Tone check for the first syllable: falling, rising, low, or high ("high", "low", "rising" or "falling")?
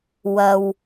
low